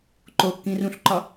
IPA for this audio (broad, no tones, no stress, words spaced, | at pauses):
ǃokːĩ rũɬǃɒ